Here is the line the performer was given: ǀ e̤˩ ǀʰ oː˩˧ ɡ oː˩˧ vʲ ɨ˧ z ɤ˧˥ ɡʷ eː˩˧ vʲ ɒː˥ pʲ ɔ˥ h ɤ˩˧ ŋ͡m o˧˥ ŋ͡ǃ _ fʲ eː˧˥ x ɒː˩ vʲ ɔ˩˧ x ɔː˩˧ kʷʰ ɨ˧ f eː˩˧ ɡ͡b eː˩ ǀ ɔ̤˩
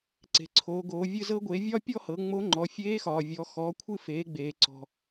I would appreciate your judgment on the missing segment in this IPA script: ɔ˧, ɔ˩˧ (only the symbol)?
ɔ˩˧